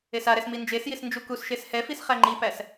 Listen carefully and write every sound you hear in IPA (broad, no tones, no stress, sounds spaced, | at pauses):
e s a ɾ ɛ s m i n d͡ʒ e s j i s n d͡ʒ u k u s ʃ e s h ɛ f i s χ æ ŋ͡ǃ i p æ s